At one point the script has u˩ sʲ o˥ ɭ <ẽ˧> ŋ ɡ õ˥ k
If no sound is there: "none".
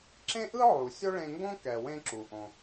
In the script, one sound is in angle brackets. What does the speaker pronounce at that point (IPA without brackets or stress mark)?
ẽ˧